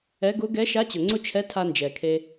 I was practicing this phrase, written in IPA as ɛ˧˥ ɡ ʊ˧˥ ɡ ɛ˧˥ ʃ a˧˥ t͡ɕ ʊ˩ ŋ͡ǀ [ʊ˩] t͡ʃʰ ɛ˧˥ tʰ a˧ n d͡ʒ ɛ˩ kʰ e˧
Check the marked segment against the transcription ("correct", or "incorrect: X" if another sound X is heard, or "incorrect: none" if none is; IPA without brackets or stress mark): incorrect: ʊ˥